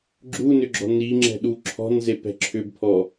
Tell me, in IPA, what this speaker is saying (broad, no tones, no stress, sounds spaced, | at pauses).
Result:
ɡ͡ǁ u n ʏ ɡ͡ǁ ɔ̤ n i ŋ͡ǁ ɛ̤ ɗ u ǁʰ ɔ̤ n z e p ɛ̤ ǁʰ ʏ b pʰ ɔ